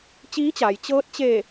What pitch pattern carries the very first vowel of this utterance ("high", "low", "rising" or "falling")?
rising